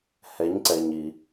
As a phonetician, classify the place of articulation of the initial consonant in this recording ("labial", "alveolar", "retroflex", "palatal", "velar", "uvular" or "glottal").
glottal